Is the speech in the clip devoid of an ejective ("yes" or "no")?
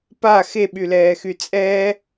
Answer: no